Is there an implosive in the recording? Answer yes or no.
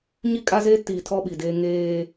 yes